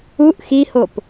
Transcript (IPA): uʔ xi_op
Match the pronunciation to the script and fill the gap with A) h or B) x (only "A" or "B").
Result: A